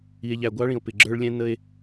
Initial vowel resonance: oral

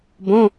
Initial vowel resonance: nasal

